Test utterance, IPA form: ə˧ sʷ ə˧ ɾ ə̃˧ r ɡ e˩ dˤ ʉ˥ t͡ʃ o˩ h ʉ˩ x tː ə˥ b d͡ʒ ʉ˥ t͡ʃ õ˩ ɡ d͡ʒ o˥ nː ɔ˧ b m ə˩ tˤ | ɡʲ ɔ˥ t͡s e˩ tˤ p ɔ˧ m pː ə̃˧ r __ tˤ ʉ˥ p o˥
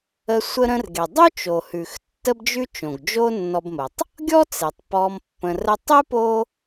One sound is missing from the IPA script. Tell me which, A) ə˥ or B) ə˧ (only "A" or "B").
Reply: A